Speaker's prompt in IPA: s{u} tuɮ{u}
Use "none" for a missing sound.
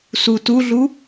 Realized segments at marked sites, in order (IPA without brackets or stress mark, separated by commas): u, u